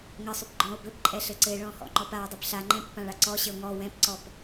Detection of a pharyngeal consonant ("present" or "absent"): absent